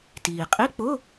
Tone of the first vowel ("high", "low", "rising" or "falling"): low